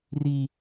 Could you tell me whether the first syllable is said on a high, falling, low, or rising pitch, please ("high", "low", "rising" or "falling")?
high